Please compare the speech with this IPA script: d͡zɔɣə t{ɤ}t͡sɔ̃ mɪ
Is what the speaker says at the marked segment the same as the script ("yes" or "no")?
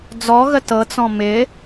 yes